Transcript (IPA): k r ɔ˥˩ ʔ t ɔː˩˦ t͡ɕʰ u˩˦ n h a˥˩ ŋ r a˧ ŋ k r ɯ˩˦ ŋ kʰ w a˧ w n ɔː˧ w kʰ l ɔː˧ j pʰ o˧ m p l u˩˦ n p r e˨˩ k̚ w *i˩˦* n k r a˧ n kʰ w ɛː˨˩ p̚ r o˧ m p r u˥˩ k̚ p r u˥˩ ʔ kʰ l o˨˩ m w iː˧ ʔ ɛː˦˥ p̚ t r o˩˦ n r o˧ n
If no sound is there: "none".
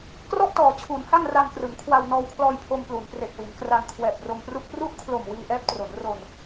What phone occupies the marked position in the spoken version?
i˩˦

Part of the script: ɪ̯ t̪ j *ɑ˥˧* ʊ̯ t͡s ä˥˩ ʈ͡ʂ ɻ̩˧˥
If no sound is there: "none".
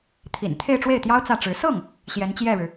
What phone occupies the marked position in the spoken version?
ɑ˥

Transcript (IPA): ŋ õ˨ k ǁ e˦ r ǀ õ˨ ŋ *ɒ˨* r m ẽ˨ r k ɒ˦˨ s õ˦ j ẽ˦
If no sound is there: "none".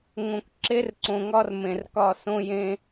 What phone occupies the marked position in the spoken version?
ɒ˦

